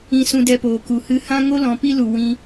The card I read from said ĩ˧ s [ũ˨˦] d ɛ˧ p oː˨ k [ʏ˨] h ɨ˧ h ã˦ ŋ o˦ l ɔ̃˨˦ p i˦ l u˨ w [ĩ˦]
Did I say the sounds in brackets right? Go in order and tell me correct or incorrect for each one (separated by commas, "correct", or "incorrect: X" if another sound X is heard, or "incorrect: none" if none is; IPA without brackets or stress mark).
incorrect: ũ˧, incorrect: u˨, incorrect: ĩ˧